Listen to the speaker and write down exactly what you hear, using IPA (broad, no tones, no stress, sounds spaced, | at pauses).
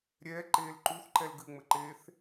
ɾʲ ɛː ǃ eː l ǃ u θ ǃ ɛ l ɡ ɨ ŋ͡m ɘ ǃ eː θ